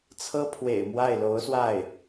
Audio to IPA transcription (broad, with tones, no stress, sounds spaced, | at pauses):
t͡sʰ ɤ˥ pʰ w ḛ˨˩ ɪ̯ m w a˥˩ ɪ̯ l o˧˥ ʊ̯ s w a˥˩ ɪ̯